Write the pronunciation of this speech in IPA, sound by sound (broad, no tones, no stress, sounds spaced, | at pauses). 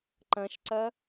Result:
ǃ ɐ̃ ʃ ǀ ɐ